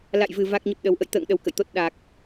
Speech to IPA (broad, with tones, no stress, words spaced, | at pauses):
la̰˧˨jvɨ˨˩ va˦˥k̚ɲə˦˥p̚ɗə˨˦w ʔə̰˧˨jt̪ə̰ː˧˨ŋ ɗə˧wkə̰˧˨jt̪o˦˥t̚ ɗa˨˩k̚